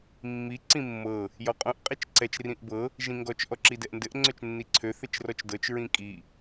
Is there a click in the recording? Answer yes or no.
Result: yes